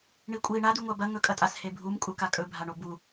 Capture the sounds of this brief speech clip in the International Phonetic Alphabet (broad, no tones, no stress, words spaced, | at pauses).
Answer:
ɳikʷʼi ɳa d̪ʉŋʷabɐ ŋɵkʼɐtʼas hebʱum kʼukakʼɵ bʱaɳobu